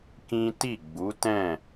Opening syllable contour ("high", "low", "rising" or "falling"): high